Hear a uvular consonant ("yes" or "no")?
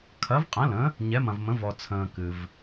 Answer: yes